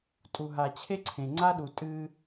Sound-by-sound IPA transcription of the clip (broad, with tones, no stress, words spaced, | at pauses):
tʼu˨ɦa˨t͡ɕʰe˦ǀʰẽ˨ ŋ͡ǀa˦ɗu˨ tʼɨ˦